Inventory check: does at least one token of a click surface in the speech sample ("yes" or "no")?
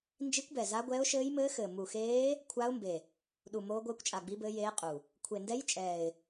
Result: no